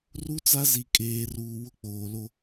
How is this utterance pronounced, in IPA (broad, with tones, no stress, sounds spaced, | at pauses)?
r u˦ t͡s a˦ z i˨ kʼ eː˨ r uː˨ w ʊ˦ k͡p oː˨ l o˦